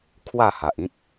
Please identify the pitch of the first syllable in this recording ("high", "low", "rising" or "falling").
falling